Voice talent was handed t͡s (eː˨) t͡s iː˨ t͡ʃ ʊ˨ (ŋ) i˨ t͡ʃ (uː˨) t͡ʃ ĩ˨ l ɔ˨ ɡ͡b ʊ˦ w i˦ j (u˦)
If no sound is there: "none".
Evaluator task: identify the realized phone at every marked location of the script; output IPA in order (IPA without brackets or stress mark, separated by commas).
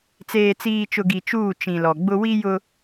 eː˨, ɡ, uː˦˨, ʊ˦